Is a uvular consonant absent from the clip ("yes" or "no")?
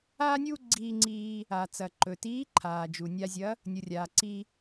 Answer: yes